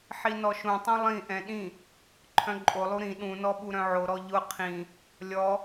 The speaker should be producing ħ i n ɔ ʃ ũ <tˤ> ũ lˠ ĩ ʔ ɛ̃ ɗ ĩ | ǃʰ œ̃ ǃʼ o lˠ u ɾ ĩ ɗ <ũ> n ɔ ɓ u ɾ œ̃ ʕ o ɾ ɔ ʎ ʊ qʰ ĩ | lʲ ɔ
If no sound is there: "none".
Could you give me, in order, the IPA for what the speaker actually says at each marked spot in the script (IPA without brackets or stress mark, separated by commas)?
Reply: tˤ, ũ